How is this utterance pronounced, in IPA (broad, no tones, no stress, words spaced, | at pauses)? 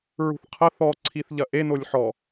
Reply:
ɹṳθqʰɐ θɔǀʰiθ ʎɐʔenolʲ ħɔ